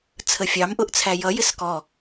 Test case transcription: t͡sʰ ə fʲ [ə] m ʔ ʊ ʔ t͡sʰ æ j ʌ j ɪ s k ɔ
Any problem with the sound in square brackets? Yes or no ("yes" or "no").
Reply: yes